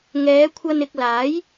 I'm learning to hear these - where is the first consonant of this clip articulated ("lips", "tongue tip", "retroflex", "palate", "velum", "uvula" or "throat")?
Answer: velum